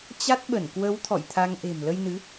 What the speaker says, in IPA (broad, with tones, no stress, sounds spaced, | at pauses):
t͡ɕ a˦˥ t̚ ɓ ə˧˩ n k w ə˨˦ w t̪ʰ ɔ̰˧˨ j t̪ʰ a˧ ŋ ʔ e̤˨˩ m l ə˧ j n ɨ˨˦